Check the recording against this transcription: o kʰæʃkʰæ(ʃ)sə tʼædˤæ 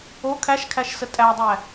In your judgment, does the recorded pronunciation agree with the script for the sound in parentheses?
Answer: yes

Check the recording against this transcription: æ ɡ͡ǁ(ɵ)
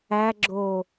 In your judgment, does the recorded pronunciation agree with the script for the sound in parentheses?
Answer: no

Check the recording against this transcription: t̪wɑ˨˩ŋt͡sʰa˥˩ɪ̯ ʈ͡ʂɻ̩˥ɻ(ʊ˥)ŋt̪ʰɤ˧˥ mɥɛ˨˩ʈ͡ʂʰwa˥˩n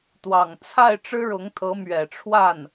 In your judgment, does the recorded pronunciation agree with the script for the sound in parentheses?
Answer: no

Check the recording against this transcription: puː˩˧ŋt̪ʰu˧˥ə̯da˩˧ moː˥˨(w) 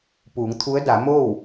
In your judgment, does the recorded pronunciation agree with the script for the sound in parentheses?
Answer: yes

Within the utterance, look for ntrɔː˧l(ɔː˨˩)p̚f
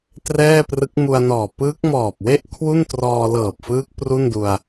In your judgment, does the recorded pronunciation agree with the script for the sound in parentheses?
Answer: no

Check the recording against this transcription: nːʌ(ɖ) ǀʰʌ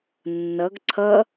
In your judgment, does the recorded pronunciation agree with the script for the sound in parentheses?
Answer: no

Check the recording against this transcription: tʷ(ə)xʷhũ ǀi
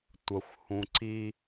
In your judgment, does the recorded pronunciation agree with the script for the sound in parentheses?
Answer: yes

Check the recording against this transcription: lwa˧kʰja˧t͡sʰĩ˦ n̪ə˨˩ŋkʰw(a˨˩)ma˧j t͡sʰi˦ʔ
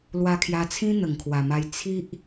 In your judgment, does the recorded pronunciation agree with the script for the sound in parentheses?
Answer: yes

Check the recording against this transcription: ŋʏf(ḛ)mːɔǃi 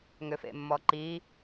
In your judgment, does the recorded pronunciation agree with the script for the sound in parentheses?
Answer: yes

